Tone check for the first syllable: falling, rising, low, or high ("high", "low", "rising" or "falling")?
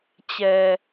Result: low